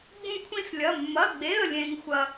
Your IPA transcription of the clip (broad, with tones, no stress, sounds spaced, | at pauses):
ɡ͡b ũ˥ kʷʰ ĩ˥ s lʲ ɐ˧˥˧ mː ɐ˧˥˧ ɡ͡b e˧˥˧ ə̯ lʲ ẽ˥ ŋ xʷ ɐ˥